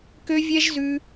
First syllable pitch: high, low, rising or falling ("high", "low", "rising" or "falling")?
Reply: high